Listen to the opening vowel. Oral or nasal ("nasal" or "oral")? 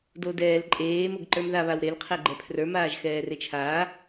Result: oral